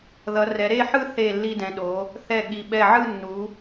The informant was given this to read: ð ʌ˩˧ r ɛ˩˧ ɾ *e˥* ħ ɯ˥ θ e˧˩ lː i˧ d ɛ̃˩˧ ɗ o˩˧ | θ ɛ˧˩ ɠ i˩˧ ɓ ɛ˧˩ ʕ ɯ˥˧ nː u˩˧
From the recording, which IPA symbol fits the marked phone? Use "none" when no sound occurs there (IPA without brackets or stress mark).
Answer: e˥˧